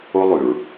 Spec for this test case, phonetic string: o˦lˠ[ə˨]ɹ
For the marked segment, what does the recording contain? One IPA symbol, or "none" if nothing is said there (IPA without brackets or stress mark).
ʉ˨